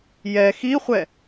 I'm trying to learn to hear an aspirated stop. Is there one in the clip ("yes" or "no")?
no